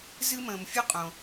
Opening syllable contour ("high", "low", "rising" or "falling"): high